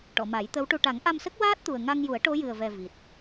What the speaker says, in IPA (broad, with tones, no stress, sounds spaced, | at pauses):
ʈ ɔ˨˩˨ m a˨˩˦ j t̪ ə˧˥ w ʈ u˧ ʈ a˨˩˦ ŋ ʔ a˧ m s ə˦˥ k̚ w aː˦˥ t̚ t̪ u˨˩ ə̯ ŋ a˧ ŋ j u˨˩˦ ə̯ ʈ o˧˥ j ɨ˨˩ ə̯ v ɛ˨˩ v i˨˩ t̚